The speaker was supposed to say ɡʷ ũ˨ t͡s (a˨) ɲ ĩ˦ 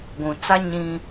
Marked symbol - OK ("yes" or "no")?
no